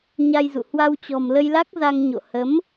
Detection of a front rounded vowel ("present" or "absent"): absent